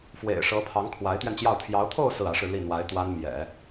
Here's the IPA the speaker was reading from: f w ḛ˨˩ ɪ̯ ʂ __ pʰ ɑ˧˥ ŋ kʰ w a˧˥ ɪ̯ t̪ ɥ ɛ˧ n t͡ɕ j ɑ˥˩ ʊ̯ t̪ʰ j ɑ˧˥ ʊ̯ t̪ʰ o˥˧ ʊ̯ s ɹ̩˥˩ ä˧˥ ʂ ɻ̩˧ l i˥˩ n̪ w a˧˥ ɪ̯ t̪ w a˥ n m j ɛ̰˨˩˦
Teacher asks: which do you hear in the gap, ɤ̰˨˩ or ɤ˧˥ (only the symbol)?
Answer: ɤ˧˥